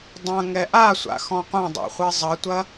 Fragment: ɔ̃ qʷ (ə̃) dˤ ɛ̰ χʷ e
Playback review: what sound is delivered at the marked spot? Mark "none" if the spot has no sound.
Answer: ɐ̃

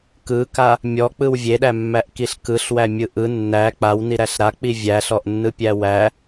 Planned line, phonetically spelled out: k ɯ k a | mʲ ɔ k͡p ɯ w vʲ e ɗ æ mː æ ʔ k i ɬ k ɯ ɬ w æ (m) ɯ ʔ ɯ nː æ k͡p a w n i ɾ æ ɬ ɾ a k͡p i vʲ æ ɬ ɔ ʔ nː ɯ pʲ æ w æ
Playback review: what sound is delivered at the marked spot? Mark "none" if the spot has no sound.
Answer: mʲ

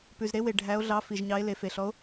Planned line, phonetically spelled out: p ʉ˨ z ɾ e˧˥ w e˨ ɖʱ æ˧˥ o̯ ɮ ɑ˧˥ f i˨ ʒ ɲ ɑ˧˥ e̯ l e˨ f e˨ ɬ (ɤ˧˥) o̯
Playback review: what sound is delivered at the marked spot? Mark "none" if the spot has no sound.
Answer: ɔ˧˥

